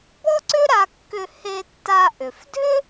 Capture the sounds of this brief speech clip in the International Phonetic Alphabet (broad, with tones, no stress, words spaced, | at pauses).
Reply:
bɔ˥ǀʏ˥ ɾa˧kːʏ˧ he˧ tːa˧ʔʏ˩f dʱʏ˥